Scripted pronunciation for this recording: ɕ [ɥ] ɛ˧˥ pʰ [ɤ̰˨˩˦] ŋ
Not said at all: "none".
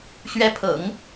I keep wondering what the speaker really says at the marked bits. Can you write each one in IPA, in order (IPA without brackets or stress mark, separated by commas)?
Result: ɥ, ɤ̰˨˩˦